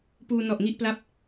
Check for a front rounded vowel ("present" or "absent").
absent